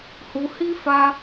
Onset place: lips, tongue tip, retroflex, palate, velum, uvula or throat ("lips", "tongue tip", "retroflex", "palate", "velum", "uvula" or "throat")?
throat